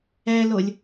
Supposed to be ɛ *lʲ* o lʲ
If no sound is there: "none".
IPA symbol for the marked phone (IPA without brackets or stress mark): l